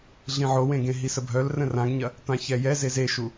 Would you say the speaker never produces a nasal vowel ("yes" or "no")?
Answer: no